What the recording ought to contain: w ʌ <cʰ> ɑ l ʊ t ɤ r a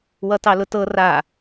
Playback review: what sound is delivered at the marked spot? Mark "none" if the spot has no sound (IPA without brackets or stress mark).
t